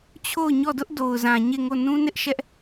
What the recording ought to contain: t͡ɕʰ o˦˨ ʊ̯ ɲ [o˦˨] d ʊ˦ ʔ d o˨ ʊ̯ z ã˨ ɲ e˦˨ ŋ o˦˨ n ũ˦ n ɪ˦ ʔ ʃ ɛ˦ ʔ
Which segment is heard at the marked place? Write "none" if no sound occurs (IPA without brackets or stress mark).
ɔ˦˨